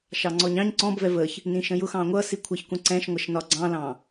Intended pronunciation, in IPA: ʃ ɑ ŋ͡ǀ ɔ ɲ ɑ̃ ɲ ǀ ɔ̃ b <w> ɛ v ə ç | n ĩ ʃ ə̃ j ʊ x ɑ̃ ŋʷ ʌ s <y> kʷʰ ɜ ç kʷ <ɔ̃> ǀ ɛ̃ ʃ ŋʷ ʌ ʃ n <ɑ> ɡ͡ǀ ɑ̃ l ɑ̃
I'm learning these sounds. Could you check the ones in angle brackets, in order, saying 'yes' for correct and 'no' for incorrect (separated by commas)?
no, no, no, no